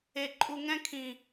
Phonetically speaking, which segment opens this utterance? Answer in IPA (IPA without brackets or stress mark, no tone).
e